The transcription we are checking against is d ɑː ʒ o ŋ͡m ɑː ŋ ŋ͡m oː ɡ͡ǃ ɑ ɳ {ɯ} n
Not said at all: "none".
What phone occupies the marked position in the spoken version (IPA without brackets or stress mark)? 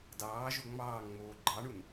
u